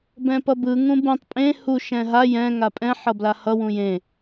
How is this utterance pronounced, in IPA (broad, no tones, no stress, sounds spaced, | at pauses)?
b ɛ̃ p ʌ b ɯ ŋ ũ b ũ tˤ pʼ ẽ h u ʃ ɛ̃ ɦ a j ɛ̃ ŋ a pʼ ɛ̃ ħ ʌ b l a h ʌ w ũ j ẽ